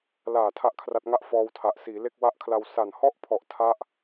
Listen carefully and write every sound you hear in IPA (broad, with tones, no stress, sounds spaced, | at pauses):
l aː˨˩ tʰ a˥˩ ʔ kʰ r a˦˥ t̚ ŋ a˥˩ ʔ f ɔː˧ w tʰ a˨˩ ʔ s iː˩˦ l e˥˩ k̚ w a˦˥ ʔ kʰ l a˧ w s a˨˩ n h ɔ˥˩ ʔ pʰ ɔ˨˩ ʔ tʰ a˦˥ ʔ